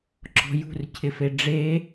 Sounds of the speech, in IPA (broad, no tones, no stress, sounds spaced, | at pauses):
ǁ ɔ̤ j ṳ r cʰ ɪ f e ɖ͡ʐ e